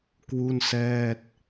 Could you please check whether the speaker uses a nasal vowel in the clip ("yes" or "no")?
no